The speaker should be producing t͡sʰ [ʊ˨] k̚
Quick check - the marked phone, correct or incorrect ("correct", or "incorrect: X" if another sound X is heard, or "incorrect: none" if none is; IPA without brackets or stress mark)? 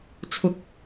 correct